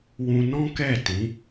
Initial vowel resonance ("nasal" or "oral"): nasal